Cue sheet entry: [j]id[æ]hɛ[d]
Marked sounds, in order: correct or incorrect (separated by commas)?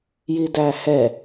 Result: correct, correct, incorrect